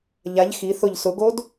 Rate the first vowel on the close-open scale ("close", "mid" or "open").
open